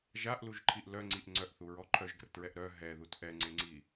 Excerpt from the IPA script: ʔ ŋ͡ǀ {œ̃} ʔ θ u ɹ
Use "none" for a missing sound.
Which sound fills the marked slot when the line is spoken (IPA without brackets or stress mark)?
œ